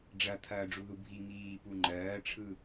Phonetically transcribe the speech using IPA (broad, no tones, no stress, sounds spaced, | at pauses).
ɖ͡ʐ ɐ t̪ʰ ɐː ɖ͡ʐ u ð u bʱ i ŋ iː p u ŋ͡ǃ ɜː ʈ͡ʂʰ ɯ